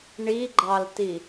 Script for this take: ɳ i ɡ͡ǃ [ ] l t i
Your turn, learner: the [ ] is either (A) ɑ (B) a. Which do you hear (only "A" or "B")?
A